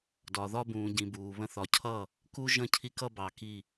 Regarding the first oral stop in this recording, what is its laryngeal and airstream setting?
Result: plain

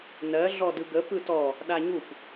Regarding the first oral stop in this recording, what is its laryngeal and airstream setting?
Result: plain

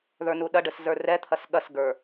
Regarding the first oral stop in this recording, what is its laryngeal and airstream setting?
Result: implosive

